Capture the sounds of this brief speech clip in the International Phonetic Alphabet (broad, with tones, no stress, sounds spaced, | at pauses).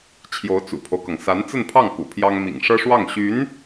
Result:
t͡ɕʰ j o˧˥ ʊ̯ t͡s ṵ˨˩ pʰ o˦ ʊ̯ k ɤ˩ ŋ s a˧˥ n t͡s ə˥˧ n pʰ ɑ˥˩ ŋ k ṵ˨˩ pʰ j ɑ˥ ŋ m ḭ˨˩ ŋ ʂ ɤ˥ ʂ w ɑ˥˩ ŋ ɕ y˧˥ n